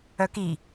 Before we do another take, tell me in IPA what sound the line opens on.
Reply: œ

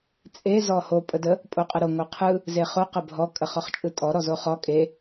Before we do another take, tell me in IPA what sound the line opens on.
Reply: t͡sʼ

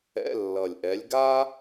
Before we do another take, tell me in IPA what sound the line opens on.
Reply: ɛ̰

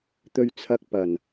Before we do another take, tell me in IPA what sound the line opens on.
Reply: t̪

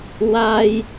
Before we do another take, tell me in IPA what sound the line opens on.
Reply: w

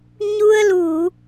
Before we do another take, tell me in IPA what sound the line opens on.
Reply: ɲ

